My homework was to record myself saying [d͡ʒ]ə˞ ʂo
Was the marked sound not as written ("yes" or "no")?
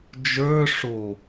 no